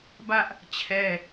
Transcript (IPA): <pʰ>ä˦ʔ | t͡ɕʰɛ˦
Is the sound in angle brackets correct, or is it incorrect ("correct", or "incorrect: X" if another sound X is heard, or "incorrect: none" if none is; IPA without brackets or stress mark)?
incorrect: b